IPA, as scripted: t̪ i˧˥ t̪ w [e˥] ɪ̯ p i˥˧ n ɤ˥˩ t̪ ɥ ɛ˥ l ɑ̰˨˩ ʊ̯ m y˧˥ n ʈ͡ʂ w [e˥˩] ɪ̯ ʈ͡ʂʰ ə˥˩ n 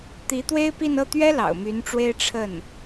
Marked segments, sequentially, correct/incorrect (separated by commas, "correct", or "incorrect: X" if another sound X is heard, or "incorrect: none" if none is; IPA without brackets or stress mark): correct, incorrect: e˥